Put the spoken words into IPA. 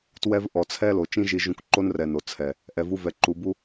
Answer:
t w ɛ˧ v ʔ ɔ˨ t͡sʰ ɛ˦ l o˨ t͡ʃ ĩ˦ ʒ i˧ ʒ ũ˧ k ǃ o˦ n r ɛ˨ n o˨ t͡sʰ ɛ˨ | ʔ ɛ˨ v u˧ v ɛ˨ ǃ u˨ b u˦

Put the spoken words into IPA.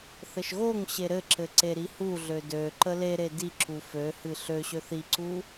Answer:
θ ɘ ʃ ɣ o ŋ ɕ e ɾ ɘ ǁ ɘ ǀ e ɾ i h u ɮ ø d ø ǃ ə l e ɾ e d i ǁ u f ø h ɨ ɬ ø ɕ ø θ i ǀ u

